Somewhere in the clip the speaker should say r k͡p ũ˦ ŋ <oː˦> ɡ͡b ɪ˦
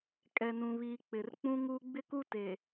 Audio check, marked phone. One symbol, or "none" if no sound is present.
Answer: uː˦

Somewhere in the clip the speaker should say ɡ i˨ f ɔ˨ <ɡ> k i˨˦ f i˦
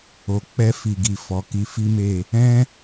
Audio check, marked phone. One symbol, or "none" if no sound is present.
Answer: none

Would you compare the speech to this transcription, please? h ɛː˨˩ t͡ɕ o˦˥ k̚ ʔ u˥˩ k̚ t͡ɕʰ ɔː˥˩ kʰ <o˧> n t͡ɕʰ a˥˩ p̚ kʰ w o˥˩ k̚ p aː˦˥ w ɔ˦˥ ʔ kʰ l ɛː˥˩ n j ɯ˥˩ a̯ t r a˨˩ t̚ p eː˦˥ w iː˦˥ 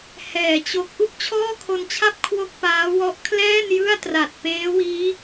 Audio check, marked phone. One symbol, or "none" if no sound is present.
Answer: o˧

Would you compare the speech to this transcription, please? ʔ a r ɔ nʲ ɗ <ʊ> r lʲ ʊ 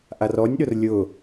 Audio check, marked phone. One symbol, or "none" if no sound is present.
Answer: ʊ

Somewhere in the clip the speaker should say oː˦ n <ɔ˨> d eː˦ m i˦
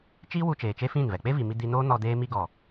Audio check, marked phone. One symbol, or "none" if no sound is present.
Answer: ɔ˧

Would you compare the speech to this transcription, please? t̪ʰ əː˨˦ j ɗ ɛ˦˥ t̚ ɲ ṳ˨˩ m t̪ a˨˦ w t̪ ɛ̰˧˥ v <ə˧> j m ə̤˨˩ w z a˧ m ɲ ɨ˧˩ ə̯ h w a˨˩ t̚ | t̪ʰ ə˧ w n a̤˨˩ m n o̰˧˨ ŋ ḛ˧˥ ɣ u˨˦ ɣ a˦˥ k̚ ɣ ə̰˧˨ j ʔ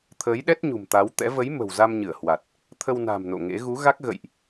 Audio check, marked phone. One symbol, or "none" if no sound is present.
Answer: ə˨˦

